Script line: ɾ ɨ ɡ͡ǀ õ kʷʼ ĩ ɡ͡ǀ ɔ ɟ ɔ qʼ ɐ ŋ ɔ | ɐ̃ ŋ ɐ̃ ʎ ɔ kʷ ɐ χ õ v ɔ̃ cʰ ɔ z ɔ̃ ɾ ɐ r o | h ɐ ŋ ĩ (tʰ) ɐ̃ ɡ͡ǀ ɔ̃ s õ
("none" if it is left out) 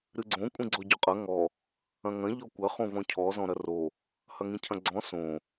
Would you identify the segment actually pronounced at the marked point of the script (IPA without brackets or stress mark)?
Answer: cʰ